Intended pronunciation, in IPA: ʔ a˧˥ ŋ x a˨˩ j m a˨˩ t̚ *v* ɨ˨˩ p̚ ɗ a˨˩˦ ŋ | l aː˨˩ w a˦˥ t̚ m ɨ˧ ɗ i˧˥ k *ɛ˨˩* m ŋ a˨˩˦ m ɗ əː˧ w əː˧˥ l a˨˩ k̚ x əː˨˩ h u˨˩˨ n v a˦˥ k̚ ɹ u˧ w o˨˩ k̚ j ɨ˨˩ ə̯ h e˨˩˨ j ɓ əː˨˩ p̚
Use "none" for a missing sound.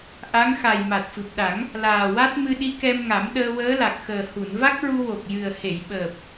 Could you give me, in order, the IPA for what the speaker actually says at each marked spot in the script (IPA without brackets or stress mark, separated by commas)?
f, ɛ˧